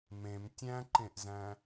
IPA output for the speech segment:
mẽm tʲæ̃ǃẽʔzæ̃

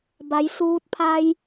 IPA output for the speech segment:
ba˩˧jsuː˧t̚ pʰa˧j

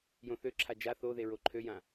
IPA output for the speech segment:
jõθøǁʰa d͡ʒa θoðe ɹoǃʰøjã

